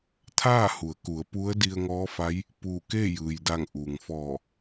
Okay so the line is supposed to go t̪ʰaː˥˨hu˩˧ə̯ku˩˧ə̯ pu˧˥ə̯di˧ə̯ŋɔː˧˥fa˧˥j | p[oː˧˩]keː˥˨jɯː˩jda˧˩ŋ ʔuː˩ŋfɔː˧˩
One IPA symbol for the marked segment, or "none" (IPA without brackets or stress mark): uː˧˩